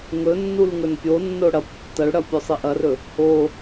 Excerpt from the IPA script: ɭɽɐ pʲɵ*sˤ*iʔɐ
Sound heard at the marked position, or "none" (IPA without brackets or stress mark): sˤ